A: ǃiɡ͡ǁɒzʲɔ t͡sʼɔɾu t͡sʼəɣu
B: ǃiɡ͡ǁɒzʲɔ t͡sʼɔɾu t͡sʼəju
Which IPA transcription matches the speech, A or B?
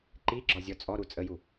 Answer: B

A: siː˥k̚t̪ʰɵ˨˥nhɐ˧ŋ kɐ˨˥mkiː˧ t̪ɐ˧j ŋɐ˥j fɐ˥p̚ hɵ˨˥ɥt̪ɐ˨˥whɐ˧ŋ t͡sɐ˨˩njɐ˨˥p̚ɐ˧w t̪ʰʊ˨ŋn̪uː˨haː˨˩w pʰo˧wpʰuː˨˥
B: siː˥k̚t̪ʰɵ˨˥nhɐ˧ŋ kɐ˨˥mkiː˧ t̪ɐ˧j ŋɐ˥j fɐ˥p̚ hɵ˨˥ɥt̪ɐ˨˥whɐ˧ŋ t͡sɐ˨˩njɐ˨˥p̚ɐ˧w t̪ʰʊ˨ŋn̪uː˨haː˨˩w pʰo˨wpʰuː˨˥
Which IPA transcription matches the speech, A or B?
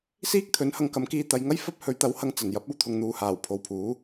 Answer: B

